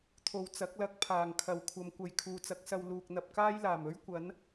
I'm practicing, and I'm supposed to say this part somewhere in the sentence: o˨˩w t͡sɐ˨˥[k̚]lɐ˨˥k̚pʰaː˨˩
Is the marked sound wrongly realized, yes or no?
no